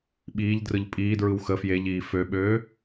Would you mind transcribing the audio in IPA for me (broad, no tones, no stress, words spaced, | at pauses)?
ɓiːʎdrɯʎ pʼiːdɹɯw xə fjeʎiː føɓøː